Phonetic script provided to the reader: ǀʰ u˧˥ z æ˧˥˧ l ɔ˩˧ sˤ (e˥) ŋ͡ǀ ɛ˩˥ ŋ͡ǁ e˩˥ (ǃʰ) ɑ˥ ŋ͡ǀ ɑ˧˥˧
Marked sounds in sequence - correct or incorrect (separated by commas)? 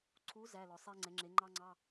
correct, incorrect